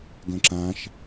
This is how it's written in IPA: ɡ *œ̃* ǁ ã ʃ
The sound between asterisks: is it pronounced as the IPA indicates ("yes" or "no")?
yes